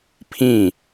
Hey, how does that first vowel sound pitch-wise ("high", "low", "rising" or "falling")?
falling